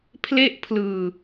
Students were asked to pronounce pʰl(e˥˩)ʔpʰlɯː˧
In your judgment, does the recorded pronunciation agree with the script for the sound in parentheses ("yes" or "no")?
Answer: yes